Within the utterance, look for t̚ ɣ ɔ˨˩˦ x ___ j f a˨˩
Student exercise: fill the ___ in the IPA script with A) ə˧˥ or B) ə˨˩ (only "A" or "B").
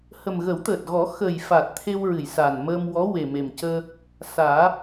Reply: B